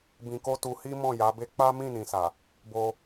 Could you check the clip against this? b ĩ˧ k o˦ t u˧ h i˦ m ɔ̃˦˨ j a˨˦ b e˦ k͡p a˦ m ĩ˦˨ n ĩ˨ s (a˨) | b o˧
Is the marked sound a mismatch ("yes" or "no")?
no